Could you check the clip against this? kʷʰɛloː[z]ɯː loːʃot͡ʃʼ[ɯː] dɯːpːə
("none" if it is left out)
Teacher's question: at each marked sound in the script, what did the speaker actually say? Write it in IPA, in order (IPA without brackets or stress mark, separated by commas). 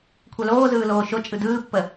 z, ɯ